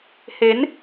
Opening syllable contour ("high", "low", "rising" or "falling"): rising